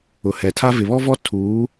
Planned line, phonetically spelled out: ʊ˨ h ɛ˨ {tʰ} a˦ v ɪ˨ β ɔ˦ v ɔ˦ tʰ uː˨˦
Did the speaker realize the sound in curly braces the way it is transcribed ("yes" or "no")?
yes